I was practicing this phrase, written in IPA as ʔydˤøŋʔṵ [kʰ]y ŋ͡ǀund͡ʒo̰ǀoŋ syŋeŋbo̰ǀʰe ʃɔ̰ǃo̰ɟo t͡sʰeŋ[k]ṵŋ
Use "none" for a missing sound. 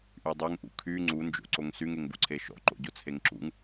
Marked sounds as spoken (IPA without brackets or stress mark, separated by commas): kʰ, ǁ